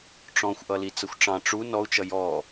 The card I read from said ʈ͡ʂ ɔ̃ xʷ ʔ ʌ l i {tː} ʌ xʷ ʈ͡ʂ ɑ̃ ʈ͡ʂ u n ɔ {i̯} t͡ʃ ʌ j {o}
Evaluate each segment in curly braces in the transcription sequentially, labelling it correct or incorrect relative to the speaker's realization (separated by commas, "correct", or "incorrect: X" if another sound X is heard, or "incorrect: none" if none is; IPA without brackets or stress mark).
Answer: incorrect: t͡s, incorrect: u̯, incorrect: ɔ